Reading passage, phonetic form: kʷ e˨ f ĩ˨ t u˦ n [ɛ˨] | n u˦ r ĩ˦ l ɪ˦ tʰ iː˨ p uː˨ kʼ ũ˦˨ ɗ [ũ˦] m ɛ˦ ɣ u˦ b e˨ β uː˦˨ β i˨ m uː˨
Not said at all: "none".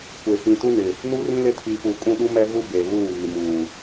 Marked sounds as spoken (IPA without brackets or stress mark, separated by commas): ɪ˨, u˦